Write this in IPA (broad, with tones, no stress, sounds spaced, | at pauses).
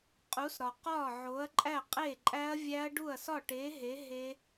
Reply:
qʼ u˨˥ s ɾ ɒ˨ q ɒː˥˩ ʕ o˨˥ ɐ̯ ǃʼ æ˥˩ qʼ e˥˩ ǃʼ æ˦˥ ɐ̯ vʲ æ˦˥ ɐ̯ ɖ u˥˩ ɐ̯ s ɒ˥˩ ʈ eː˨˥ ɦ e˨˥ ɦ e˦˥